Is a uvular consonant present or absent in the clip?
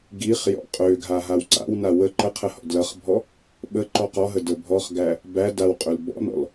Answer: present